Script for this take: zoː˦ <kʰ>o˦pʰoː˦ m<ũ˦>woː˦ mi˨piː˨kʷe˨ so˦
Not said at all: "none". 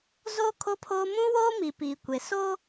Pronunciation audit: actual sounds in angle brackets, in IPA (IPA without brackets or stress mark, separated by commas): kʰ, ũ˦